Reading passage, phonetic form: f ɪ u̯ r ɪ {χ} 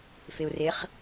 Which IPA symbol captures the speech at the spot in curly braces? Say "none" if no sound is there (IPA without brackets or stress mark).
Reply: χ